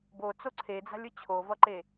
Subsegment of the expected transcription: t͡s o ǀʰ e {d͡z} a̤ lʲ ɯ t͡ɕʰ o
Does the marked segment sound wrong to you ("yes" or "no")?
no